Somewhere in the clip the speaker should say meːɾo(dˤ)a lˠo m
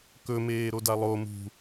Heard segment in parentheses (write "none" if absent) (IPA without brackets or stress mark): d